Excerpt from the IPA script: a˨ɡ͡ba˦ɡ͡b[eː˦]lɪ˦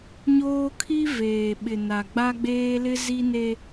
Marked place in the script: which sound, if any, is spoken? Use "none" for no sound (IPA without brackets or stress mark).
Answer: eː˦